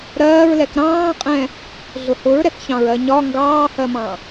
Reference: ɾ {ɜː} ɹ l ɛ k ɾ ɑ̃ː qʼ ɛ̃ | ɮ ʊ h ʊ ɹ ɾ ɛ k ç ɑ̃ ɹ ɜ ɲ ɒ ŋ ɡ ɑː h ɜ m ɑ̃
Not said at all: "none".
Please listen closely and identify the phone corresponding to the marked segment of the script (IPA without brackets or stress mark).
ɜː